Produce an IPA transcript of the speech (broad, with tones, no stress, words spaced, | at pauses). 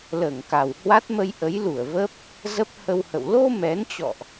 ləː˧˩ŋka˨˩w hwa˦˥t̚mə˧j ʔə˨˦jlu˧˩ə̯ və˦˥p̚ | zə˦˥p̚hə˧whə̰˧˨w lo˧ mɛ˨˦nt͡ɕɔ̰˧˨ʔ